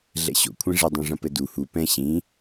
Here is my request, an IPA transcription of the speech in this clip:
ɮ ɛ̰ ɕ o̰ kʷʰ ɛ̃ ʐ ɘ dˤ ũ ʐ ɐ̃ p ɘ d u h u p ɛ̃ ɕ ĩ

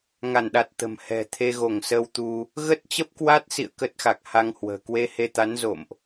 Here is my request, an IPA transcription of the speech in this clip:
ŋ a˧˩ n ɗ a˨˩ t̚ t̪ ə̤˨˩ m h ɛ̤˨˩ t̪ʰ e˧ ɣ o˧˩ ŋ s ə˧ w t̪ u˧ | ɣ ə˦˥ t̚ t͡ɕ ə˦˥ p̚ k w a˦˥ t̚ s ḭ˧˨ ə̯ k ə˦˥ t̚ x a˨˩ k̚ h a˧ ŋ h w ə̤ː˨˩ k w e˧ h e˧ t̪ a˨˦ n z o̰˧˨ m ʔ

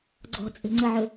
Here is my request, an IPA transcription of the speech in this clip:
ɡ͡ǀ ɔ̤ t͡sʼ e̤ ŋ͡ǀ ə ʕ ɵ

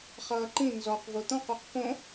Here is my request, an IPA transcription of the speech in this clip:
χ ʌː ǃ ĩ n z ɔ q v o t̪ ɔ̃ q o q p õ

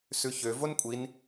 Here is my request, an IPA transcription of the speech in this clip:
s ʉ ç ø v o n kʷʼ i n

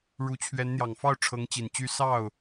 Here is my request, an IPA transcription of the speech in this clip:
ɻ u˧˥ t͡ɕʰ ɥ ɛ˧˥ n n̪ j ɑ˨˩ ŋ f ɑ˥˩ ʊ̯ ʈ͡ʂʰ ɤ˧˥ ŋ t͡ɕ i˨˩ n t͡ɕ y˥ s ɑ˥˩ ʊ̯

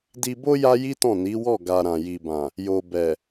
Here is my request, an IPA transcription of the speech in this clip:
d i˧ b o˦ j a˦ j i˦ t ɔ̃˦˨ n i˨˦ w ɔ˦˨ ɡ a˨ ɾ ã˨ j i˨ b ã˨ | j o˨ b ɛ˨

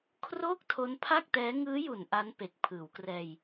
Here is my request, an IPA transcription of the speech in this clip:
kʰ r oː˥˩ k̚ tʰ o˦˥ n pʰ a˥˩ k̚ t ɛː˦˥ ŋ ɯː˦˥ j u˨˩ n ʔ a˦˥ n p e˨˩ k̚ pʰ ɯː˩˦ w k r ɛː˧ j

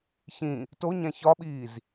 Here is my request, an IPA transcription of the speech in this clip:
ç ĩ | t o ɲ æ̃ ç ɒ ɓ iː z

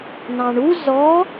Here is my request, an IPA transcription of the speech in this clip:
n ɑ̃ ɳ u z ɔ

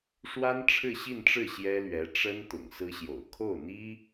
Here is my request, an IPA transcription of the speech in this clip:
ʂ w a˥ n ʈ͡ʂʰ ɻ̩˥˧ ɕ i˥˧ n ʈ͡ʂ ɻ̩˥˩ ɕ j ɛ˥ l ɥ ɛ˧˥ ʈ͡ʂ ə˥ n t̪ ʊ̰˨˩ ŋ s ɹ̩˥ ɕ j o̰˨˩ ʊ̯ kʰ o˥˩ ʊ̯ n̪ i˥

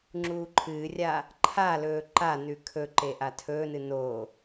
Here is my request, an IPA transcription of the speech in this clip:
ŋ͡ǁ uː ǃʰ ɨː rʲ a | ǃʰ a l ɵː ǃ a n ʉ kʰ ɵ ǃ e ʔ a tʰ ɵː n ɨ n o

